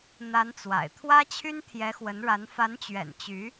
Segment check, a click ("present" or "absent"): absent